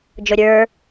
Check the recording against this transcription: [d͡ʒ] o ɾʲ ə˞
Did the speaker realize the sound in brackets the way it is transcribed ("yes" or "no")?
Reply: yes